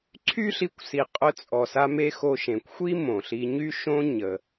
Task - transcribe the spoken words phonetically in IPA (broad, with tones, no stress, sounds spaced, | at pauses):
ǀʰ y˥ ɬ i˧ kʷ s i˩ qʼ œ˧ t͡sʼ ɔ˩ s a˧ m e˥ x o˧ ʃ ẽ˩ kʷ xʷ i˥ m õ˩ ɬ i˧ ɲ y˥ ʃ õ˥ ɲ ə˩